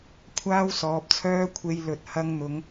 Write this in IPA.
kʷʰaː˥wsɔː˨˥p̚t͡sʰœː˥ kʷʰe˧jlɵ˨t̚hɐ˧ŋn̪ʊ˨˧ŋ

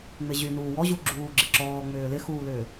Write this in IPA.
ŋ͡mɪʑynuː wɔʑu ɡ͡ǁuːɡ͡ǁɪǁɔː ŋ͡mʏːlɪxuːlʏː

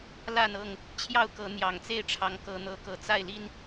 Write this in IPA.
la˥˨nɤ˥˨ŋ | t͡ɕʰjɑ˥˨ʊ̯kɤ˨˦ n̪jɑ˨˩ŋt͡se˥˨ɪ̯ʈ͡ʂʰɑ˨˦ŋ kɤ˦n̪ɤ˦kɤ˥˨ t͡sa˥˨ɪ̯li˦n

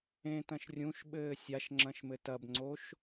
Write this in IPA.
ẽtɐ̃ʃ rʲũʃɓɘː sʲaʃŋ͡ǁɐ̃ʃmɘ tɐbŋ͡ǀoʃ

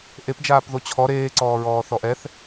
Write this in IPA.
ʔepd͡ʒaːp ðot͡ɕʰɔ ɾeːǀɔːɹɔː θɔʔɛθ

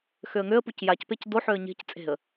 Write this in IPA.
xøə̯ŋøə̯puc jacpec doħøə̯ ɲe̤c t͡sʼe̤ə̯

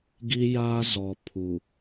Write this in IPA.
ɡi˦jaː˦ zɔ˨ pʰu˨

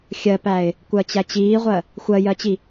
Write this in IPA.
xʲɜpæɪ̯ | kʷɜt͡ɕæt͡ɕiːʁʷɜ | xʷɜjɜt͡ɕi

